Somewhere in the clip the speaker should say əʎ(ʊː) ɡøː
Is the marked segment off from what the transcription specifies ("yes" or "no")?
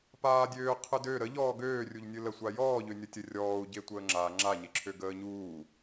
yes